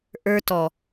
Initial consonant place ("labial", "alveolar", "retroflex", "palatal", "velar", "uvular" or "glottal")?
glottal